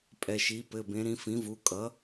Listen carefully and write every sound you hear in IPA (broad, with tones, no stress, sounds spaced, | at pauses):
pʼ ɛ˩˧˩ ʃ i˩˥ p ɘ˩˧˩ b ẽ˩˥ ɾ ĩ˩˥ f ĩ˩˥ v u˩˧˩ kʼ ʌ˩˥